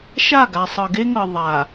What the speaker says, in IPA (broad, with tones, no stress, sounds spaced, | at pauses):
ʃ a˦˨ ɡ a˨ sˤ ɤ˨ ɡ e˦ ŋ ɤ˨ ðˤ a˨